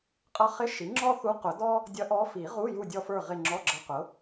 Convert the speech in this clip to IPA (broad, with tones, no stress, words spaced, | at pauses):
qʼʌ˧˥χɪ˧˥˧ ʃi˩˥ŋ͡ǁɔ˥θu˧˥ qʊ˨˩˦dɔ˥ | dʲʌ˧˥ʔɔ˧˥ fi˨˩˦ʁu˧˥˧ ju˦˨dʲɔ˦˨fə˞˦˨ ʁɪ˦˨ŋ͡ǁɔ˧˥˧ɡ͡ǁʌ˧˥qʊ˩˥